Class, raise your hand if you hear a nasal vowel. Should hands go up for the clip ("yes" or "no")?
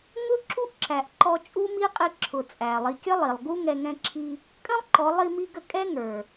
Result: yes